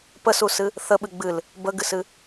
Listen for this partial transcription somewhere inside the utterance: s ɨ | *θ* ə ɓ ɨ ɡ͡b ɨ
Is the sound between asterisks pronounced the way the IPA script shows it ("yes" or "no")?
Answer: yes